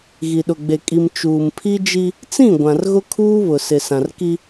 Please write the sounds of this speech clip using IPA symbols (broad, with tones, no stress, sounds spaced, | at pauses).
ɣ i˨ ɗ ʊ˨ ɡ͡b e˨ kʼ i˨ m t͡ʃ uː˨ m pʰ i˦ d͡ʒ i˦ | t͡s ĩ˦˨ ɡʷ ã˨ r ɣ ʊ˦ kʰ uː˦ β ʊ˨ s ɪ˨ s ã˨ r k i˦